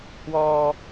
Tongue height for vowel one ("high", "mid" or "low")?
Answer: mid